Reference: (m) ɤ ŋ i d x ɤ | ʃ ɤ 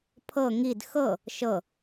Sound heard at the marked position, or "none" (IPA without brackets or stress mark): pʰ